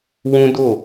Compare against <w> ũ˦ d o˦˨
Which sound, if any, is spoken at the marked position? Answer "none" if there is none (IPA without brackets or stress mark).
w